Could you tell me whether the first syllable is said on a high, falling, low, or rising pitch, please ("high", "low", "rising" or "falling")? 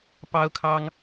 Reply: high